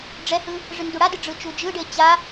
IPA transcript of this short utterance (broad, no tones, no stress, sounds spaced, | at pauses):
ɖ͡ʐ ɛ h ɯ | ʐ ɯ n d u ɽ a d ɯ ɖ͡ʐ ɯ t͡ʃ u d͡ʒ ɯ ɖ e t͡ɕ a